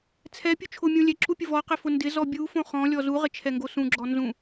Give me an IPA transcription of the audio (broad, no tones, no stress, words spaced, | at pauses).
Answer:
t͡sʰɛpʲu t͡ʃʰʊmʲõ lʲɛǁupʲʊ vɔqɪfʊ ndɪzɔ bʲufõ χɔ̃lʲɔ zuʁɪt͡ʃʰɛŋɡo sũɡ͡ǁɔnzũ